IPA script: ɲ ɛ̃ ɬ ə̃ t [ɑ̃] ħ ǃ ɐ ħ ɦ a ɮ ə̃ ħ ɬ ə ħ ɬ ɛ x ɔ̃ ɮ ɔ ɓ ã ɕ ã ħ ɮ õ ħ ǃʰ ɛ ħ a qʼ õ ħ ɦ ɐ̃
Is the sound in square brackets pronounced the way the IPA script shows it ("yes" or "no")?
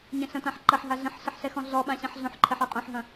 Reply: no